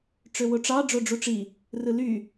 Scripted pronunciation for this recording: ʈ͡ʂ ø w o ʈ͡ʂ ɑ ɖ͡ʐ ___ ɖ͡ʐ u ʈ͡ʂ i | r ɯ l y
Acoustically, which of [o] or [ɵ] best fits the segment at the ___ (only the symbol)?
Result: o